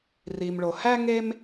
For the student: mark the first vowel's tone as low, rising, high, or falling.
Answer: low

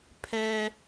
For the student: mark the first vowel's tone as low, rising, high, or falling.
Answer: high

